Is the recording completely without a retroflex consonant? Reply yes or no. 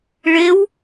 no